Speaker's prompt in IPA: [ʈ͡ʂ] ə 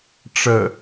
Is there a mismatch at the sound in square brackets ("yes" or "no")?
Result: no